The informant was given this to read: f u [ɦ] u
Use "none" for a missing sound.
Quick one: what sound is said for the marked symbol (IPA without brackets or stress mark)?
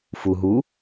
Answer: ɦ